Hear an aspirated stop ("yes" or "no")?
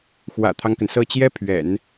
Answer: yes